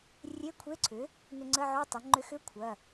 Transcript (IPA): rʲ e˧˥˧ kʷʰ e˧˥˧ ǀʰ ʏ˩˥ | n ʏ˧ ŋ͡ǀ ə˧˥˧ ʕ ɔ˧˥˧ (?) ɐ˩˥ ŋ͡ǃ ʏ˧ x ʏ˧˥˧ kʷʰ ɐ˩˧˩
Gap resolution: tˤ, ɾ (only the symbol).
tˤ